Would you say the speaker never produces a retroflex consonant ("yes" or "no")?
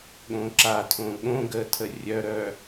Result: yes